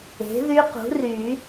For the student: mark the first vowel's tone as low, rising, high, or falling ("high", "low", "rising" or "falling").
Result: rising